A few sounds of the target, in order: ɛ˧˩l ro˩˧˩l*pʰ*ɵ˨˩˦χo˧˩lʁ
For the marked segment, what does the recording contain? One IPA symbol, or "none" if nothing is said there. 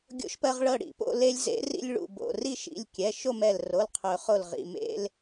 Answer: qʰ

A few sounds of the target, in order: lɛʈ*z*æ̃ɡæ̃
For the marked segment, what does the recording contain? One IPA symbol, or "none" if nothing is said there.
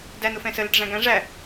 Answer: ʐ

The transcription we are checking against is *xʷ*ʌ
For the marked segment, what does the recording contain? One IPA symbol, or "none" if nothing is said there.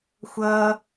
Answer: xʷ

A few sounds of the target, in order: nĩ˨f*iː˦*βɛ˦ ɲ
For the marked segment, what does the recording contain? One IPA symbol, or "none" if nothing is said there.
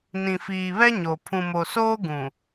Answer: iː˨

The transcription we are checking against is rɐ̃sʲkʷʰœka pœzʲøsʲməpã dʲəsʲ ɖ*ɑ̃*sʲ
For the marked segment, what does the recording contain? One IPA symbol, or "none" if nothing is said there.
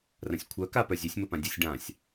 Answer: ã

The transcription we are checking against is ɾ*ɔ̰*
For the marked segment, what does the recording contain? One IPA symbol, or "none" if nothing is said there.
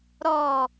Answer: ɔ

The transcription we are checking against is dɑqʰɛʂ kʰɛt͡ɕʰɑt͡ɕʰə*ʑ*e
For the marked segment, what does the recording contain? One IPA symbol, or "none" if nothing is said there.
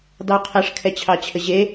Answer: ʑ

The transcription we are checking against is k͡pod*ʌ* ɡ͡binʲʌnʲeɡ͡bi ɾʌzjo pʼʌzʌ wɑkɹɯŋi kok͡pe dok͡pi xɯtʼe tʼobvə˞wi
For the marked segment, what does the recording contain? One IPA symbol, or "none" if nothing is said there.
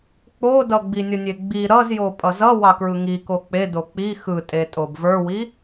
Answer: ʌ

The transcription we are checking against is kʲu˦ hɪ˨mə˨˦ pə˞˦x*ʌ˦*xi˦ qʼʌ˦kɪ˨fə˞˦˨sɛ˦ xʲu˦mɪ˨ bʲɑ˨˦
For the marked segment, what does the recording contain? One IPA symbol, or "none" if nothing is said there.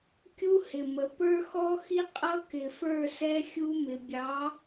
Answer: ɔ˦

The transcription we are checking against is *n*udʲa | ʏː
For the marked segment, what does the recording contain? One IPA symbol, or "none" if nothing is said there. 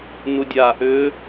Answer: n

